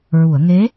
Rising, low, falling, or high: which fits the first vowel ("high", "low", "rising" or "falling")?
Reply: low